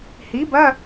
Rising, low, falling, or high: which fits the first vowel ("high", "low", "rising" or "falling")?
rising